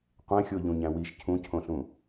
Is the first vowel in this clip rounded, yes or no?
no